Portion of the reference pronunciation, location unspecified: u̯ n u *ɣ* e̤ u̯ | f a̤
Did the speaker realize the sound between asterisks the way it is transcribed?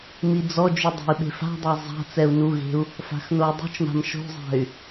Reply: yes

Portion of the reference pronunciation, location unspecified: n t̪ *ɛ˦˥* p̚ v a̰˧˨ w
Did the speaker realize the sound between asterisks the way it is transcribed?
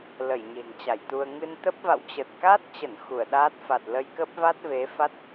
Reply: no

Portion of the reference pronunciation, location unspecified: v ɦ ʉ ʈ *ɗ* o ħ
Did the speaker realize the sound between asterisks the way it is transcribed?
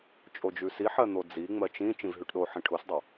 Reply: yes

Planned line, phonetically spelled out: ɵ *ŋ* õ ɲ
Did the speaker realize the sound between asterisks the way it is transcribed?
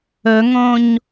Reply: yes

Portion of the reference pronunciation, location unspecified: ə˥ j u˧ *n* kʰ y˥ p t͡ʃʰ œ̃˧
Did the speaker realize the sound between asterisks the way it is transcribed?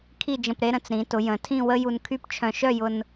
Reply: yes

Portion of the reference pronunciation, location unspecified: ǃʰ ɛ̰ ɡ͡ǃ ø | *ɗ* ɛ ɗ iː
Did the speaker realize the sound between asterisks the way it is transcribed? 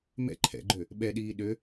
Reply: no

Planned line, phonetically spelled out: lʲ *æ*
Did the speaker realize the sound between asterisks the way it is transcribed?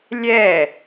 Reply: no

